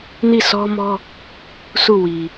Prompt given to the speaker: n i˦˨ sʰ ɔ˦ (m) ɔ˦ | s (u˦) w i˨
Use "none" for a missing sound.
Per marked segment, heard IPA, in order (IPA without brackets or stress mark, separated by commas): m, u˦˨